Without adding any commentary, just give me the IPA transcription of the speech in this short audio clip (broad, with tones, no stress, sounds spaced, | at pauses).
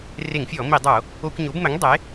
r e˧˩˧ ŋ fʲ ɔ˧˩˧ m i˧˩˧ dˤ o˧˩˧ | o˧˩˧ kʷ ɲ o˩˥ b m ɘ˩˥ ŋ dˤ e˩˥